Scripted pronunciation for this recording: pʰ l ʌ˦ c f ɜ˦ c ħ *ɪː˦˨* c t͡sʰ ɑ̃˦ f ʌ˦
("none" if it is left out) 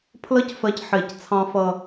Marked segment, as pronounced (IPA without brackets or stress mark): ɪː˦˨